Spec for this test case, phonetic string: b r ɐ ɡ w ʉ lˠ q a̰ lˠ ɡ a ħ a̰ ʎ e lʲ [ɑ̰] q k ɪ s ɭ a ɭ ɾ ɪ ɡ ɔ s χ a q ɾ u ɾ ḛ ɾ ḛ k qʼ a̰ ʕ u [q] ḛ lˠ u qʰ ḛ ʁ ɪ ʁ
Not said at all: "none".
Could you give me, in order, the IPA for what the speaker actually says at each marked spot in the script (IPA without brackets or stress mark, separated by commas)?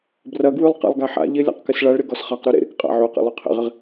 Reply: a̰, q